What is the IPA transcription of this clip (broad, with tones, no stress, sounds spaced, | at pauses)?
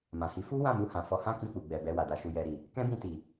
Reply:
m ã˨ h i˨˦ f u˦ w ã˦˨ m u˧ h ã˨ f ɔ˧ h ã˦ k ĩ˧ k͡p u˨ ɡ͡b ɛ˨ b ɛ˧ w a˨ d a˨ ʃ u˨ j ɛ˨ ɾ i˨ | k ɛ̃˦ b ĩ˧ t i˨